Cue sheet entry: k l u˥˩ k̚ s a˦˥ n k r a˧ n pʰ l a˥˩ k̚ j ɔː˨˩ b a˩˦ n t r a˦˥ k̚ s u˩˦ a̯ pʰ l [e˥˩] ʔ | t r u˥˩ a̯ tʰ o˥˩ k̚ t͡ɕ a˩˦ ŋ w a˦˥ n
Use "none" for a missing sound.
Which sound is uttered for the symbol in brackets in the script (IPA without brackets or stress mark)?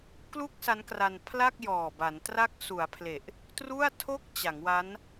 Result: e˨˩